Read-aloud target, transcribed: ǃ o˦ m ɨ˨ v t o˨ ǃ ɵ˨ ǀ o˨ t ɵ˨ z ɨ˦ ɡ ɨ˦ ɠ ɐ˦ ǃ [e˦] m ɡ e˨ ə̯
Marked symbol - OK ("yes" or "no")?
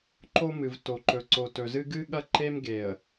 yes